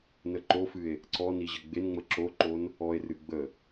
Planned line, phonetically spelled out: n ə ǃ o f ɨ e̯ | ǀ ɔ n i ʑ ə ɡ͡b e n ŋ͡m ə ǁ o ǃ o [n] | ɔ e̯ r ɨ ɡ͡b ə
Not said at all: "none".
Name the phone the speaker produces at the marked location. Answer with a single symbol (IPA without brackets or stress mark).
n